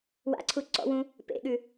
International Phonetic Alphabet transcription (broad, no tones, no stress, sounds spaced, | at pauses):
w a̰ ǀʰ u ǀ ɔ̰ w ũ | p ḛ ɠ ʉ